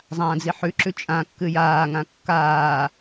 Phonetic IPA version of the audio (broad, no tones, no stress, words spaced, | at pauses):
zˤãːd͡ziħʉǁʉ t͡ʃʼã kːɨjaːŋã kːaː